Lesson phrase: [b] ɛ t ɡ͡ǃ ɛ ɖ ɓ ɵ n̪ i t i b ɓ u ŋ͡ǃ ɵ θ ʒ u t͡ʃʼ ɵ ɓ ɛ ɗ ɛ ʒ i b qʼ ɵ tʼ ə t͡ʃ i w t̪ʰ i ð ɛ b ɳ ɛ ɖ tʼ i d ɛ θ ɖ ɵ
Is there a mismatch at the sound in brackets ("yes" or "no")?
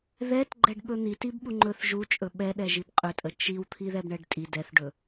yes